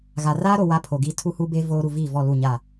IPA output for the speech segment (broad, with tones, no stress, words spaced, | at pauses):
ɣa˨ raː˦ɾo˨ wa˦pʰo˨ɡiː˦ tʰu˦hu˦be˦ voː˦ ɾu˨viː˦˨vɔ˦˨ lu˦˨ɲa˦˨